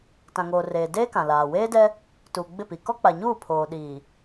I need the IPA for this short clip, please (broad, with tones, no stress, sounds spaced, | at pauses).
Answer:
t ã˨ ŋ oː˨ r eː˨ d eː˦ k ã˨ l aː˨ w eː˦ d ɛ˦ | t uː˨ ɡ͡b ɪ˦˨ p i˨ k ɔ˦ k͡p a˨ ɲ uː˦˨ pʰ oː˨ ɗ iː˨